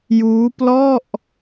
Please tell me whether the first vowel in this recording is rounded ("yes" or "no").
yes